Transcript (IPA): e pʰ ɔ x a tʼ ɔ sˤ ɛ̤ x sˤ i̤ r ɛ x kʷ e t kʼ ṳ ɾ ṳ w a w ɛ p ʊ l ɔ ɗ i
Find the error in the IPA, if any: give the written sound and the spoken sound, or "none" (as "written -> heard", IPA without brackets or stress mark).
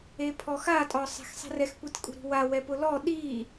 none